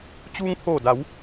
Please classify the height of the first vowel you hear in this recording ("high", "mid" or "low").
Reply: high